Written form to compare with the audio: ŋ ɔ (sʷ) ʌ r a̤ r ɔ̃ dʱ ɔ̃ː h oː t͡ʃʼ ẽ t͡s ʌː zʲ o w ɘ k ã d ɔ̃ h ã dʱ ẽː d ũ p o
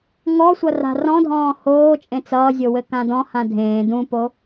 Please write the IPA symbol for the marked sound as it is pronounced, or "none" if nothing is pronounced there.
sʷ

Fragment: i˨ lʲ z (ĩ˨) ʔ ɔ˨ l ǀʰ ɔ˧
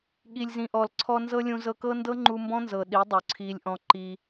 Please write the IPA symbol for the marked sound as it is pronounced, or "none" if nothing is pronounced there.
ĩ˨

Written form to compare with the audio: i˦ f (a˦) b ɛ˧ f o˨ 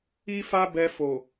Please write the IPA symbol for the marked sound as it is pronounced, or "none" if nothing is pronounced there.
a˦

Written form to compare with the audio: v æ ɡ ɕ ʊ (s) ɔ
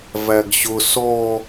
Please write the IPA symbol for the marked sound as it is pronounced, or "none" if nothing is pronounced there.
s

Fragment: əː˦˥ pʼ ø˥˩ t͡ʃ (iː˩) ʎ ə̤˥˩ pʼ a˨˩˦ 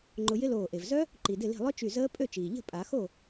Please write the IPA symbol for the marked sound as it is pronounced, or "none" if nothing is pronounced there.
iː˩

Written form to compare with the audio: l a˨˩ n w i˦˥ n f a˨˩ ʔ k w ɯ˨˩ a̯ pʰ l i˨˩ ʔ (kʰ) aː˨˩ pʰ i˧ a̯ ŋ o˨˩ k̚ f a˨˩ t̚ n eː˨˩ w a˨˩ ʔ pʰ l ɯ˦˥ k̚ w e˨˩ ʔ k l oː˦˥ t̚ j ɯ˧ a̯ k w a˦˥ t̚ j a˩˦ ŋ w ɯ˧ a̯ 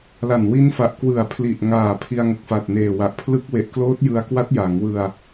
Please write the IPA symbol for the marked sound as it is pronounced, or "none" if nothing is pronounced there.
ŋ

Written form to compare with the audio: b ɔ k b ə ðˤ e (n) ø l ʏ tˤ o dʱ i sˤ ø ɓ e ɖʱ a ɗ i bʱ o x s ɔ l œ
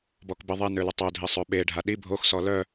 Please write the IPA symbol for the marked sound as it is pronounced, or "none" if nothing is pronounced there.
n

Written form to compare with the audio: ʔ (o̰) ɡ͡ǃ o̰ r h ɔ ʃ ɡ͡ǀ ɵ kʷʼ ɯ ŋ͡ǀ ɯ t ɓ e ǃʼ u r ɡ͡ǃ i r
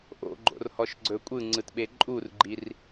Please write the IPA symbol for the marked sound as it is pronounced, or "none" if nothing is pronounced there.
o̰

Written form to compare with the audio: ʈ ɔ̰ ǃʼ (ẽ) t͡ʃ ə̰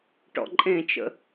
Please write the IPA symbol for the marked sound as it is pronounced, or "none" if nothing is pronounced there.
ẽ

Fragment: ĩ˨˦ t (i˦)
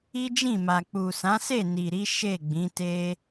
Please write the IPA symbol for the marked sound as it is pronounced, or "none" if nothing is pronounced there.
e˦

